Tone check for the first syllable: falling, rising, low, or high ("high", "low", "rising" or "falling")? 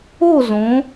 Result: falling